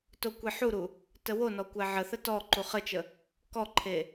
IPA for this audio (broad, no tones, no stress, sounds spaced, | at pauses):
t o kʷ e ħ u ɾ u | t ə w o n ɔ kʷ æ ʕ ə θ ə t ɔ ǃ u χ ə t͡ʃ ə | k ɔ ǃʰ e